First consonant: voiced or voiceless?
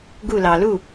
voiced